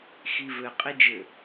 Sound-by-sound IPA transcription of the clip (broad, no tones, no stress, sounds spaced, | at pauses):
x i v ɘ qʼ i d͡ʒ ɘ